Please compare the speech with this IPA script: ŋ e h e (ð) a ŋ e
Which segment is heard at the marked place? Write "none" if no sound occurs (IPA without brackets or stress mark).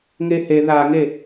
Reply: ð